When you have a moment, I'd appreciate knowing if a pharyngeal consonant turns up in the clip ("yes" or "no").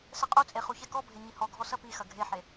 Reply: yes